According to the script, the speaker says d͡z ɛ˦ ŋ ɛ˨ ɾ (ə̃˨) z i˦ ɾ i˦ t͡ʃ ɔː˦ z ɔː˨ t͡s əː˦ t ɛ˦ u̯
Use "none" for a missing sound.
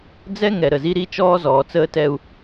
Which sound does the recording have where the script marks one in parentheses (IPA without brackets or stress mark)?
ə˨